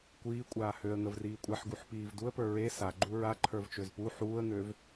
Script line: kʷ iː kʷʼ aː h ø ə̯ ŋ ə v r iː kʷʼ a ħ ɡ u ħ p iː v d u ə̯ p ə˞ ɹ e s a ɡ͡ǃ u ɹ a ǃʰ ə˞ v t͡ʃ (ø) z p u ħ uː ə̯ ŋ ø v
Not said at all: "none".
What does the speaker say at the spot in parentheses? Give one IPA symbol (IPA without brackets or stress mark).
ø